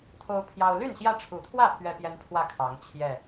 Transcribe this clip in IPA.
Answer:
t̪ʰ o˦ ʊ̯ pʰ j ɑ˦ ʊ̯ l y˥˨ n ɕ j ä˦ ʈ͡ʂʰ u˨˦ t̪ʰ w ä˥˨ pʰ ɥ ɛ˦ p j ɛ˦ n pʰ w ä˥˨ kʰ ɑ˨˦ ŋ t͡ɕʰ j ɛ˥˨

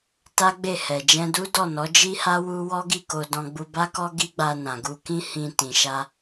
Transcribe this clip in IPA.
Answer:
t a˦ ɡ͡b e˦˨ h ɛ˨ d͡ʒ ɛ̃˧ d u˦ d ɔ˦˨ n ɔ˨˦ d͡ʒ i˦ h a˦ w u˦ w ɔ˦ ɡ i˦˨ k o˧ d ɔ̃˧ ɡ͡b u˧ b a˦ k ɔ˦ ɡ i˦ ɡ͡b a˧ n ã˨ ɡ u˧ k ĩ˦ h ĩ˧ t ĩ˨ ʃ a˧

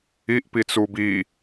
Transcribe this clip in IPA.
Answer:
i ʔ p i t͡s u b i

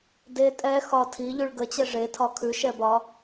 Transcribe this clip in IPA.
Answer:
d e tʼ ɛ x ɒ tʰ i ʎ ʉ ɭ ɡ ə t͡ɕ ɛ ʐ e tʰ ɒ kʰ ʉ ʃ ɛ b ɒ

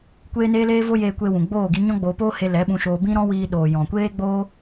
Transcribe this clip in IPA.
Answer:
kʷ eː˦ n eː˦ l eː˦ v o˦ j eː˧ kʷ e˧ w ũ˨ ɡ͡b oː˦˨ ɡ i˧ ɲ ɔ̃˦ ɡ͡b oː˧ p oː˦ h e˧ l ɛ˨˦ ɓ ũ˧ ʃ oː˧ b ĩ˦ ɾ ɔ̃˦ w iː˧ ɗ oː˨ j ɔ̃˨ kʷ eː˦ ɡ͡b o˦

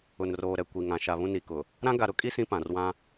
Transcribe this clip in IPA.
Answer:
ʊ˨ n r oː˨ ɾ ɛ˨ kʷ i˨ ŋ ã˨ ʃ a˨ β ũ˦ n i˨ k ʊ˨ | ɾ ã˦ ɡ a˨ ɾ ʊ˦ kʼ i˦ s ĩ˦ p ã˨ r w ã˦

